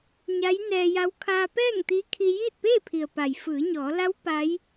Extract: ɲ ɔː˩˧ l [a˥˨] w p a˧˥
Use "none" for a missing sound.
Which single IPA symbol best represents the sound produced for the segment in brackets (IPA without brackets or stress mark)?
a˧˥